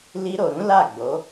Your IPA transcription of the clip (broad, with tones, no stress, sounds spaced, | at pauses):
l i˧ ɾ o˨ ɾ ũ˨˦ l a˦˨ ɡ͡b o˨˦